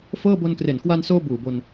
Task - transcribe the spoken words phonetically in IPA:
fɤː˥˩ bo˧nkre˨˩n kwa˧nsoː˧ buː˨˩bo˧n

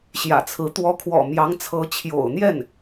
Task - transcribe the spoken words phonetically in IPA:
ɕjä̰˨˩t͡sʰɹ̩˧˥ t̪wɔ˧˥kʰwɔ̰˨˩mjɑ˧˥ŋ t͡sʰɤ˧˥t͡ɕʰjo̰˨˩ʊ̯n̪jɛ˥˩n

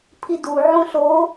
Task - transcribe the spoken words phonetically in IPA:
pʰidu ʕõɬo

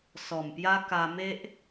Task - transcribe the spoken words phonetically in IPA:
sɔ˨˩mpja˦ ka˧me˦ʔ

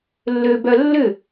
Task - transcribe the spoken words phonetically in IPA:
lːøbœ lːʏ

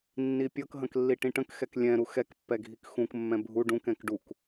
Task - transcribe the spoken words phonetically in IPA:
nːipʲɤkɦə̃k lːiʈĩʈə̃kxɛk lʲɛ̃ɾu xɛkpːɛ ɡʱikxũkmːɛ̃ bʱu ɖũkɛ̃k ɖuk

